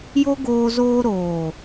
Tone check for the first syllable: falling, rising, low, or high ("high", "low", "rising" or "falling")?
high